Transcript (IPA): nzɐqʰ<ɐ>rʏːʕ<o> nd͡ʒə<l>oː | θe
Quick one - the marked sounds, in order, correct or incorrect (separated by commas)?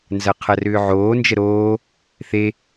correct, incorrect, incorrect